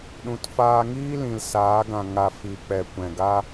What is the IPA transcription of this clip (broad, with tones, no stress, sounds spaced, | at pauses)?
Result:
ɗ ũ˨ t f aː˧ ŋ iː˦ l ĩ˨ l s aː˨˦ ɡ ã˨ ŋ a˧ f iː˨ k͡p ɛ˨ kʷ ɛ̃˨ ɡ a˦